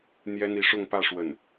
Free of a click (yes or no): yes